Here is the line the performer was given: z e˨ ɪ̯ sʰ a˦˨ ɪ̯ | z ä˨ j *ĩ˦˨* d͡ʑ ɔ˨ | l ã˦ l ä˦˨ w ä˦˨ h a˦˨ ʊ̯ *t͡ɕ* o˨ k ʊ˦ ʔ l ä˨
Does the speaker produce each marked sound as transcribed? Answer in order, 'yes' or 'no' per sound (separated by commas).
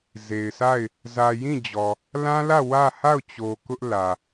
yes, yes